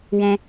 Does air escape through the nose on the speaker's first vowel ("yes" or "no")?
yes